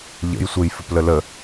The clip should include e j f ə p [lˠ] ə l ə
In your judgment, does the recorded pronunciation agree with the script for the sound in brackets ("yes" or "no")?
no